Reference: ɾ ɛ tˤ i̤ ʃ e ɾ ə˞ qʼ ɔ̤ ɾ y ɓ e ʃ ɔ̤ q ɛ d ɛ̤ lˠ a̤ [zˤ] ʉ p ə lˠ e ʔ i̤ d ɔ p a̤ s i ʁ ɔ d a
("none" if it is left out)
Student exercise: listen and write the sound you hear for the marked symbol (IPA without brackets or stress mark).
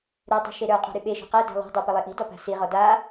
dˤ